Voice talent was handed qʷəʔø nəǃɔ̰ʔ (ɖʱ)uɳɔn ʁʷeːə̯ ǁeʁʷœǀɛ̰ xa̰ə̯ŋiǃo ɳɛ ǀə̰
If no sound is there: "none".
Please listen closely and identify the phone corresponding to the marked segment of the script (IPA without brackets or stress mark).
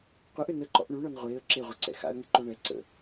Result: ɳ